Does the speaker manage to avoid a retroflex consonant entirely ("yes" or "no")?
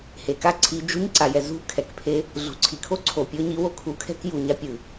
yes